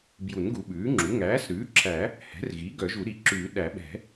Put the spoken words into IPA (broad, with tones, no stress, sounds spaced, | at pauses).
b j u˨˩˦ n ɡ u˨˩˦ ɓ ʉː˩˥ ŋ͡ǁ u˩˥ ŋ æː˩˥ s ɾ ʉː˩˥ ǁʰ æ˨˩˦ | h ɛ̤˩˥ r ɣ i˩˥ ɡ œ˨˩˦ ʒ u˨˩˦ ɾ i˩˥ ǁ ʉː˨˩˦ ɗ æ˨˩˦ ɓ ɛ̤˨˩˦